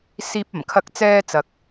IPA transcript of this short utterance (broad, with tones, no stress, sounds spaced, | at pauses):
s iː˧ p̚ ɐ˨˩ m kʰ ɐ˧ k̚ t͡s ɛː˧ t͡s ɐ˨ k̚